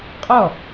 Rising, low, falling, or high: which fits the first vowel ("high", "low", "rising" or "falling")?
falling